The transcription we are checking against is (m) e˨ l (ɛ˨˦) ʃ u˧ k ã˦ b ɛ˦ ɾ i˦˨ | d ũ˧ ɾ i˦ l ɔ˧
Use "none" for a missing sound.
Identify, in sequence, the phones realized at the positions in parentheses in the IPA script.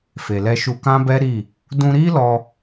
f, ɛ˧

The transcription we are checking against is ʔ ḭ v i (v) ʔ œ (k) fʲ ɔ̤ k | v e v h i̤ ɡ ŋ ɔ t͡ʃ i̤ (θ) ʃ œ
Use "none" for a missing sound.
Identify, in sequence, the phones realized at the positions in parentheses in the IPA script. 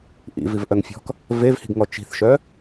v, ŋ, θ

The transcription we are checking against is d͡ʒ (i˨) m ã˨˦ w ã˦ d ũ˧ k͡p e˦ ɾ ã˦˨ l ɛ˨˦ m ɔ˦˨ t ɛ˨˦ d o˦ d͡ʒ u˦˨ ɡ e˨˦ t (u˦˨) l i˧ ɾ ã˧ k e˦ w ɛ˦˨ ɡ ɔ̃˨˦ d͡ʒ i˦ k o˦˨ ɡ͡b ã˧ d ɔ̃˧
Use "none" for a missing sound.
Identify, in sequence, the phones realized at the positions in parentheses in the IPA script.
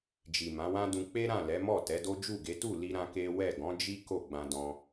i˨, u˦˨

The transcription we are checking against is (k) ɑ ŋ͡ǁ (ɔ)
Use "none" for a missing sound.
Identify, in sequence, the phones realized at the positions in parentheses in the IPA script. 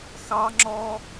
x, ɔ

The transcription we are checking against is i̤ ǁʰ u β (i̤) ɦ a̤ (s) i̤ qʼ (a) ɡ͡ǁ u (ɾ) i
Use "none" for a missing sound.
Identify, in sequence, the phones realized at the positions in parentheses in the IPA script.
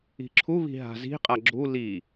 i̤, z, a, l

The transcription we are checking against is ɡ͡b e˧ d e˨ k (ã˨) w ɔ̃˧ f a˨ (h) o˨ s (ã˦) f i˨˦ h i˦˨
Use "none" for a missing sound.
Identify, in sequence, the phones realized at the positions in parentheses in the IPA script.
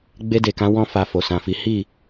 ã˨˦, f, ã˨

